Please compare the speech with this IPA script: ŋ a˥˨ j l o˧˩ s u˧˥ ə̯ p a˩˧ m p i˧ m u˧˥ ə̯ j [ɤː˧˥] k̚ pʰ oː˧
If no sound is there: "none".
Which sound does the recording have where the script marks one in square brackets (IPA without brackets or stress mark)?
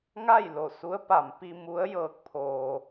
ɤː˧˥